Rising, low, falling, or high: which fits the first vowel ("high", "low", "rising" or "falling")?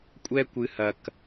high